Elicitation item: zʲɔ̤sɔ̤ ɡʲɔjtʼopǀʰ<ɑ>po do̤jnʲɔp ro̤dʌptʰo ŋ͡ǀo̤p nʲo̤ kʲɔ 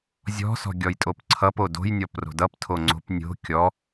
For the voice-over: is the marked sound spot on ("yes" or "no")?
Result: no